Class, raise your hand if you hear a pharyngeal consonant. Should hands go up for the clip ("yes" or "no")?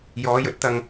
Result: no